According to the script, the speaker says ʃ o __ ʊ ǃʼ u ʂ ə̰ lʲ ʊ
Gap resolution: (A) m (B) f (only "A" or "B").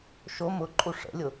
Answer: A